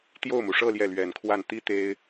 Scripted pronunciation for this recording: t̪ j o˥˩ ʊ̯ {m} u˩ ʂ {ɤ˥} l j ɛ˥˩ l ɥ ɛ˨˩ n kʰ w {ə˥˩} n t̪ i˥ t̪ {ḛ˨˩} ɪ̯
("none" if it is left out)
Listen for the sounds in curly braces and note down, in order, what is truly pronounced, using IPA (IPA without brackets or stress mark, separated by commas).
m, ɤ˥˧, a˥˩, e˥